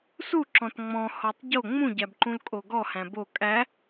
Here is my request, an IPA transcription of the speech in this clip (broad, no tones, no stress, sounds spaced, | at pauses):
s u ǁ ɔ̃ t ŋ͡m ɔ̃ h ɔ tˤ ɟ o ŋ͡m ũ ɟ æ b ǃ ũ l kʼ o ɡ ɔ h æ̃ b o kʼ æ